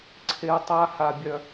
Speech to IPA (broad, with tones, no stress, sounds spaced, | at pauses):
ǀʰ e˧ ʊ̯ tˤ a˦˥ h a˧ bʲ œ˧